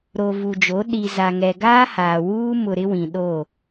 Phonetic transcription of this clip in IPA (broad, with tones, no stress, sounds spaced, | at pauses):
ɾ o˨ v u˨ d͡ʒ o˨˦ ɗ i˨ z a˨ ŋ ɛ˨ ɡ aː˦ h aː˨ w uː˦ m ʊ˨ ɾ ɪ˦ w ĩ˨ ɗ o˦˨